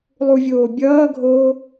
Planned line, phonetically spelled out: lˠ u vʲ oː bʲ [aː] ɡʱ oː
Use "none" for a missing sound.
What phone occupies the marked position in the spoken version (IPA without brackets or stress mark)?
ʌː